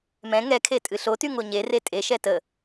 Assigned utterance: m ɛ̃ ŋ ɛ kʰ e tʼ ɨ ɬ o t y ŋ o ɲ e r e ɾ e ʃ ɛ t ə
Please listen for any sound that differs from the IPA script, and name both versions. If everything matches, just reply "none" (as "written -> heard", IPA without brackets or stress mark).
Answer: ɾ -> tʼ